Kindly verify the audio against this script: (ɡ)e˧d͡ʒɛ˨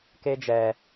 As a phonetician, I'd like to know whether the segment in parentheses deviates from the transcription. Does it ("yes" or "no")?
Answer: yes